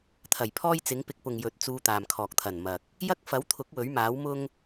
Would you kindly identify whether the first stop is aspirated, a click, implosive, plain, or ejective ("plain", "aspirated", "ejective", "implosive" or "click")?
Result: aspirated